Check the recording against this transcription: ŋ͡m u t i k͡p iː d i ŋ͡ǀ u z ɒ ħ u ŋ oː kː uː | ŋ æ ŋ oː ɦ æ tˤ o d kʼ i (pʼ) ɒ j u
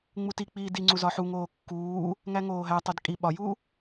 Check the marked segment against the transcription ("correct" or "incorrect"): incorrect